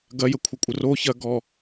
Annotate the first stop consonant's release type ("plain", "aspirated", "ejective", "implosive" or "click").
plain